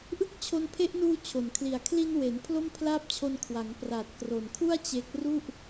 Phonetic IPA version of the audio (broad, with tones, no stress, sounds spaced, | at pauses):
ʔ ɯ˥˩ k̚ t͡ɕʰ o˧ n pʰ e˦˥ ʔ n uː˧ t͡ɕʰ o˩˦ n kʰ l i˩˦ a̯ kʰ l i˧ n w e˩˦ n pʰ l o˥˩ m pʰ l aː˥˩ p̚ t͡ɕʰ o˧ n kʰ w a˩˦ ŋ p r aː˨˩ t̚ k r o˨˩ n kʰ u˥˩ a̯ t͡ɕ e˦˥ k̚ r u˥˩ ʔ